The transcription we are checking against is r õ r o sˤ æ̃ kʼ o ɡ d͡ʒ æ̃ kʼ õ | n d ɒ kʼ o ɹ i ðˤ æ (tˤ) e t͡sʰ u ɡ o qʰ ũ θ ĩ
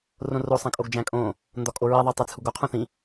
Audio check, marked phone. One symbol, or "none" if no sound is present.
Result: tˤ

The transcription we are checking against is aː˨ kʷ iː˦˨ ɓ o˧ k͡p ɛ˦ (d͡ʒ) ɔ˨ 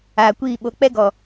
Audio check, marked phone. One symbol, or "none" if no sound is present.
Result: ɡ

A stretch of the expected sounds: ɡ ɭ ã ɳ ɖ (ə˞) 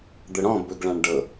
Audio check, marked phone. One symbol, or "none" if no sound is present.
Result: ɤ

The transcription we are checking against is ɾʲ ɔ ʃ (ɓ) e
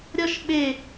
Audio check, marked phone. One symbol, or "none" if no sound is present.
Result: ɓ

